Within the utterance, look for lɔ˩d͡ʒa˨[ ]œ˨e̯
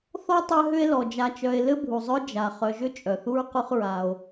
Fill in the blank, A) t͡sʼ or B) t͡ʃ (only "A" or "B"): B